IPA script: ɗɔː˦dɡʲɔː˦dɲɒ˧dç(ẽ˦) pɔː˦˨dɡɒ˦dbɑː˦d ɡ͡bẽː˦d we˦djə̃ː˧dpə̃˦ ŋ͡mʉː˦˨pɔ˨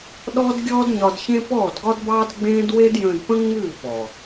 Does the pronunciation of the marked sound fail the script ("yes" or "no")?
no